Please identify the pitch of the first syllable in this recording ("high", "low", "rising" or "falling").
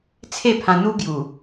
falling